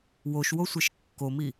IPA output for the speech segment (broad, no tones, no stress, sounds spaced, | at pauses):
w o ʃ w o sʷ ɛ ʃ kː o m i